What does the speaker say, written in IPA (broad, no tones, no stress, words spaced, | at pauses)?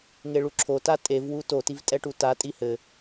ŋeɭuǁʰo tatʼev wuto tivtʼɛʈuta tʼihɘ